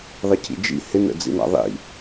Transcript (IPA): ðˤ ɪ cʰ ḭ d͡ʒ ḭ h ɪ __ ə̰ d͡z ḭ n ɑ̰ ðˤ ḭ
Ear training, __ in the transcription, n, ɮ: n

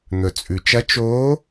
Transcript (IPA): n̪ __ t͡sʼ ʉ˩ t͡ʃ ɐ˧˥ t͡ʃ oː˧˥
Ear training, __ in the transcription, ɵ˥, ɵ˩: ɵ˩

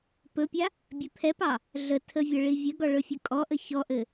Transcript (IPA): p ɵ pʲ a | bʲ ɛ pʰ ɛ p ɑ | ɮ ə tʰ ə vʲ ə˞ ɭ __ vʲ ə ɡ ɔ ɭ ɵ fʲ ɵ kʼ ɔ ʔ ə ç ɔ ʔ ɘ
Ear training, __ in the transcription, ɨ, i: i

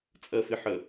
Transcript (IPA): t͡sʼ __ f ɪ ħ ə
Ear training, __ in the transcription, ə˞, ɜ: ɜ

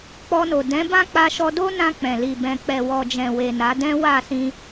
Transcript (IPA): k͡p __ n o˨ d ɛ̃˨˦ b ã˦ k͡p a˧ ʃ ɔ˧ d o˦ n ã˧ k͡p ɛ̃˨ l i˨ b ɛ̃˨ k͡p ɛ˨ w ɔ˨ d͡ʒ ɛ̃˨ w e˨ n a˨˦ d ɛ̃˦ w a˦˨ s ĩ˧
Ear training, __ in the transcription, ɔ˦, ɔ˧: ɔ˧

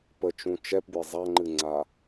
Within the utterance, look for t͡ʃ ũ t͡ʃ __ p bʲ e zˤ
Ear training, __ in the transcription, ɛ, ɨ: ɛ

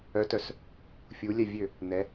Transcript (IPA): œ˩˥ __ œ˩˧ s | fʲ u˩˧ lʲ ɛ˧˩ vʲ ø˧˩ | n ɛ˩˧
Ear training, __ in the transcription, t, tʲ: t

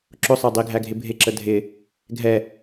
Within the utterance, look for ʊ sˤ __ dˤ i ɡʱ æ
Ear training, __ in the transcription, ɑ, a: ɑ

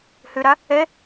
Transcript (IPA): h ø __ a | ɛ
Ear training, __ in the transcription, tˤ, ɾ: ɾ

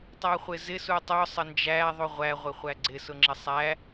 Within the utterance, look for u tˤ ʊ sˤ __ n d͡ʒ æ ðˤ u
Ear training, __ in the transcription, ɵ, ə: ə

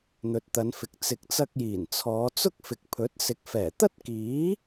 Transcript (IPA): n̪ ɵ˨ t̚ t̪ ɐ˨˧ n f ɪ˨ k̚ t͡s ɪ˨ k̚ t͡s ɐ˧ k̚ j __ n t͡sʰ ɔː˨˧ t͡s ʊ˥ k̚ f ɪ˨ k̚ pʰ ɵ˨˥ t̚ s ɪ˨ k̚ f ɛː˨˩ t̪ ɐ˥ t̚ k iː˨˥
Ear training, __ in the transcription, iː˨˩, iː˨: iː˨˩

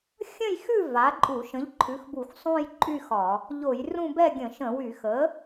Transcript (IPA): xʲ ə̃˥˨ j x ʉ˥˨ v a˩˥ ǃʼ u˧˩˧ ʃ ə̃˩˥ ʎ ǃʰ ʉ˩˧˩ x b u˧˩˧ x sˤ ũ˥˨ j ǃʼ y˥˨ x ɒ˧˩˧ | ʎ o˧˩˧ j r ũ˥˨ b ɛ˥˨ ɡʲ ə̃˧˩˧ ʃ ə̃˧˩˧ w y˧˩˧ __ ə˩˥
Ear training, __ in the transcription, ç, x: x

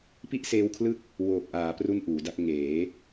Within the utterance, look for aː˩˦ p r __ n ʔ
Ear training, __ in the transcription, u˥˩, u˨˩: u˥˩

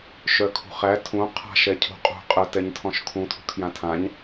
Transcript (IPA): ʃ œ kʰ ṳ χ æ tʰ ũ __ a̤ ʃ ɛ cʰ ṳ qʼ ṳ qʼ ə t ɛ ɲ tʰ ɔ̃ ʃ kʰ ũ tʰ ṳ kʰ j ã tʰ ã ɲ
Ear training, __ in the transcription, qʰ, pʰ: qʰ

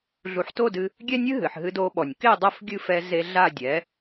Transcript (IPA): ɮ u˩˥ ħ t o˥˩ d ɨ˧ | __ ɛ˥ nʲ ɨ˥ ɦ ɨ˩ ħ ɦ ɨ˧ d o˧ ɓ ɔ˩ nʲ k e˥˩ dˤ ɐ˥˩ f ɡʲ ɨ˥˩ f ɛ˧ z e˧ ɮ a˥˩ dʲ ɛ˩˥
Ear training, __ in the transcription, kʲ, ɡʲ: ɡʲ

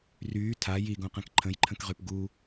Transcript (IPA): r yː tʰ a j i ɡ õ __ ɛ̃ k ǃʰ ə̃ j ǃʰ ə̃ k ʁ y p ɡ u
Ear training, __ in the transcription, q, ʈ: q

